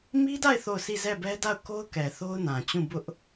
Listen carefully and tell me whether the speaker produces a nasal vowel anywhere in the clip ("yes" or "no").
yes